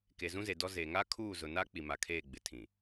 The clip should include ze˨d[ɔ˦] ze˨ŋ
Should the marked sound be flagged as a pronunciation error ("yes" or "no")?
no